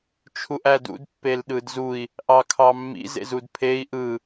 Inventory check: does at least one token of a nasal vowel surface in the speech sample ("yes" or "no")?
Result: no